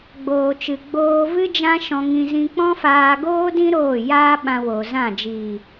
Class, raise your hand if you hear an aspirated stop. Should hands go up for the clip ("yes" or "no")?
no